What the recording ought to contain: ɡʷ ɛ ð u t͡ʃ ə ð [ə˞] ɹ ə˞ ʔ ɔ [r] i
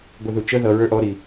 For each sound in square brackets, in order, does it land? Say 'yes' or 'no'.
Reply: no, no

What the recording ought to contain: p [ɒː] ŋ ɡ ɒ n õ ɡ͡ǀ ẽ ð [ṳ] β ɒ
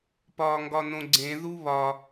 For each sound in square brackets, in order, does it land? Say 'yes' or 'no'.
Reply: yes, no

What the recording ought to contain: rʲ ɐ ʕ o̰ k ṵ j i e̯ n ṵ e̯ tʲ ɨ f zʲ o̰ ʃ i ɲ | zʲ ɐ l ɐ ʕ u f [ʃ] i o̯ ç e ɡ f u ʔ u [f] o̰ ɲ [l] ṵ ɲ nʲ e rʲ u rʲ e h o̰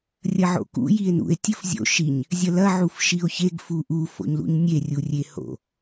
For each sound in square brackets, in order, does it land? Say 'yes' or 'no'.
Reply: yes, yes, yes

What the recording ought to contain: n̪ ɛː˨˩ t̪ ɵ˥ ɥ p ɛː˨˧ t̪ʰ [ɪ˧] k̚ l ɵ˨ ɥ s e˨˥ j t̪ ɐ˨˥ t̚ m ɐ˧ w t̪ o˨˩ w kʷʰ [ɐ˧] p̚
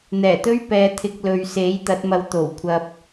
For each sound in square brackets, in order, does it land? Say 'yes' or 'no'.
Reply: yes, yes

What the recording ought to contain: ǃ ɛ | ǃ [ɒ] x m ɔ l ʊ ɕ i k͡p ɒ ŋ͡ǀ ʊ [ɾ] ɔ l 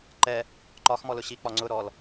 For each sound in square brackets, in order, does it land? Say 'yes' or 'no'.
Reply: yes, yes

